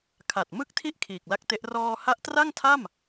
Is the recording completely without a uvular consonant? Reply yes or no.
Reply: yes